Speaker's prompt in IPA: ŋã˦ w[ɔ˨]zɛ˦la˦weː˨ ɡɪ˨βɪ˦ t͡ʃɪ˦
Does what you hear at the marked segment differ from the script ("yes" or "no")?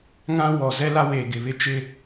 no